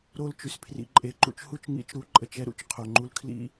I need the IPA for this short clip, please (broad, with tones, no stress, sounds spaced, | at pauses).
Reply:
ɾ o˦˨ l t͡ʃ y˨ s pʰ r ḭ˨ ǃʼ e˨ ǃ ṵ˨ t͡ʃ h u˦ t͡ʃ ŋ ḭ˨˦ t͡ʃ ɾ u˨˦ ǃʼ ə˨ t͡ʃ ɛ˦ ɾ ṵ˨ t͡ʃ qʰ o˨ ŋ͡ǃ u˦ l kʰ l ḭ˦